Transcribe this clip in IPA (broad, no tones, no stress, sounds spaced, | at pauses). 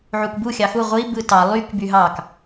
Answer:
ʕ u k b u xʲ ɑ x u ʁʷ i b ɯ t ɑ lˠ y k b y ɦ ɑ k